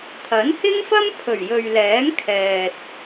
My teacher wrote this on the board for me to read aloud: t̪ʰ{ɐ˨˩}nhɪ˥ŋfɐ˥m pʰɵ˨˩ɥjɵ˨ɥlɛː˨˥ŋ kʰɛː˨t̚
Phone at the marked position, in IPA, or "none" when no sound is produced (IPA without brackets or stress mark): ɐ˨˥